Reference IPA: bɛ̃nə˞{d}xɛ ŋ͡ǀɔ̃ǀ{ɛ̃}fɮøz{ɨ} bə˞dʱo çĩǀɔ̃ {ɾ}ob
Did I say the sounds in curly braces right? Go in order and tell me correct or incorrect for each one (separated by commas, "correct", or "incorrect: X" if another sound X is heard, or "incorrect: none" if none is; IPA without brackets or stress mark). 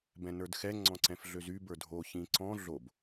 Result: correct, correct, incorrect: y, incorrect: ɮ